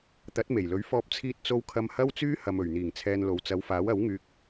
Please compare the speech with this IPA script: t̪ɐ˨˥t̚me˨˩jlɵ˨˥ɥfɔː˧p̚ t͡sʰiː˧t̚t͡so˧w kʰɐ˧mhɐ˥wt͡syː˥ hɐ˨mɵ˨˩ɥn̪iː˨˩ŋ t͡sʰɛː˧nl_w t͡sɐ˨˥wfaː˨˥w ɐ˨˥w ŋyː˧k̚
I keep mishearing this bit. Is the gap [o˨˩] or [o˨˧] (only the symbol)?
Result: o˨˧